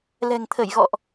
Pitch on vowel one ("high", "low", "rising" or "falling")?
low